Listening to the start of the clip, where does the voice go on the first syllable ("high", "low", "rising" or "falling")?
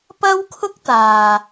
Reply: high